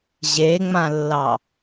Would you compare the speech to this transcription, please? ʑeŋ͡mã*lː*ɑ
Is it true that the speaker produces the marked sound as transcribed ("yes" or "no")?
yes